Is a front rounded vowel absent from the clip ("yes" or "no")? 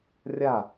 yes